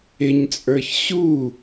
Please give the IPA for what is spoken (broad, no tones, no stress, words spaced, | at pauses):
ɪɲt͡sʼə˞ç ɕu